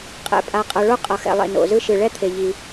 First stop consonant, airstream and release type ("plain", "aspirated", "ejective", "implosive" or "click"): ejective